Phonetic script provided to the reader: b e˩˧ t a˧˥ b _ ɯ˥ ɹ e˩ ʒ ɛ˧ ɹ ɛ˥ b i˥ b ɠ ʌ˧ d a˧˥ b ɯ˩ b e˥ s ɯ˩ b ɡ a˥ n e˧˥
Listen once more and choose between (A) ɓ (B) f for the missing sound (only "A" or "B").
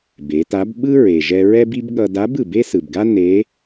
A